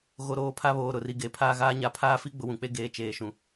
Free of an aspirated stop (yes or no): no